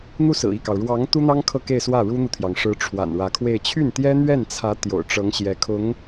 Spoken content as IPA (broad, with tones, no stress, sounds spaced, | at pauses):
n̪ u˥˩ s ɹ̩˨˩ i˥˩ k ɑ˩ ʊ̯ ɻ w ɑ˧˥ ŋ t̪ u˥ n̪ ɑ˥ ŋ kʰ ɤ˥˧ k e˥˧ ɪ̯ s w ä˥˩ ɻ u˥ n̪ u˨ t̪ʰ j ɑ˩ ŋ ʂ ɻ̩˧˥ ʈ͡ʂʰ w a̰˨˩ n ɻ ä˧˥ kʰ w e˥˧ ɪ̯ t͡ɕʰ y˥˩ n t̪ j ɛ˥ n̪ ɥ ɛ˥˩ n t͡sʰ ä˧˥ t̪ j o̰˨˩ ʊ̯ ʈ͡ʂ ɤ˧˥ ŋ ɕ j ɛ˧˥ kʰ ʊ˧˥ ŋ